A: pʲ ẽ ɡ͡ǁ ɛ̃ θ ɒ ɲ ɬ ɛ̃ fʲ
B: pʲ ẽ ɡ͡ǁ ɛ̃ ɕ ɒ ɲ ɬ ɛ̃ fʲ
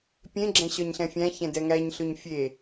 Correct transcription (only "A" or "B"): B